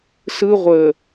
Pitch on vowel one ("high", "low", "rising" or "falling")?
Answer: high